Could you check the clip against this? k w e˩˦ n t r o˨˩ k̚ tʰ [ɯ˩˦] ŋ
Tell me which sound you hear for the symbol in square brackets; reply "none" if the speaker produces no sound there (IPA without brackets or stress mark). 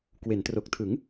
ɯ˩˦